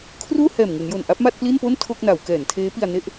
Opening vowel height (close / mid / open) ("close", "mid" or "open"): close